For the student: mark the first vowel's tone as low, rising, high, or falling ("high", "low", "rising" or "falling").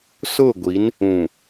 falling